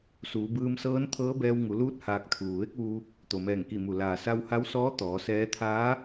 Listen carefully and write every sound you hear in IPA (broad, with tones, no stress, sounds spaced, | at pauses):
s uː˩˧ b ɯː˧ m s ɤː˧˥ n t̪ʰ ɤː˧˥ b ɛː˧ w ŋ u˩˧ l uː˧˥ t̚ h aː˧ k̚ t̪ʰ uː˩ ʋ e˧˥ k̚ ʋ u˧ | t̪ o˩ m ɛː˧˩ ŋ k i˧˩ m u˩ l aː˩ s a˧ w h a˧˥ w s ɔː˧˥ t̪ ɔː˩˧ s ɛː˧˥ t̪ʰ aː˧˥